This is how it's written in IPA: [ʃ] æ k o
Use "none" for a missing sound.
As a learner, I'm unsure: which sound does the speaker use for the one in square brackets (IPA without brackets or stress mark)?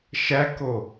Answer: ʃ